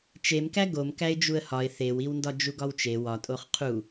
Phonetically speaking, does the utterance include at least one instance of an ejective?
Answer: yes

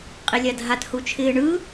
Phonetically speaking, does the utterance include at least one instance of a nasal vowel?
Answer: no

